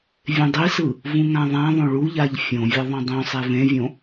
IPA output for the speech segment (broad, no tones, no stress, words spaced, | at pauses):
vʲẽdˤisɯ | vũŋãðˤãðˤõ ɭuʎaʎ fʲõvʲʌ ðˤõdˤõsˤe vẽvʲõ